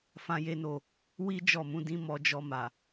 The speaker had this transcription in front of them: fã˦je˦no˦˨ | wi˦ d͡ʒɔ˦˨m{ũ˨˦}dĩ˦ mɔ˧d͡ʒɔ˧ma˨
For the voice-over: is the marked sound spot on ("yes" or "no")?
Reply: yes